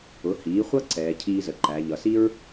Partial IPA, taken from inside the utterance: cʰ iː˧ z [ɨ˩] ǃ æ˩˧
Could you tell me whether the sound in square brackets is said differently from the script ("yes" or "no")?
yes